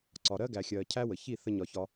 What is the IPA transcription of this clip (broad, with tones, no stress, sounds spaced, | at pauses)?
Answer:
ǀ ɒ˨ ɾ ɜ˦ ɡ æ˨ xʲ ɜː˨ cʰ æ˦ w ə˨ ç i˦˨ θ ə˧ ɲ ɒ˨ ç ɒ˧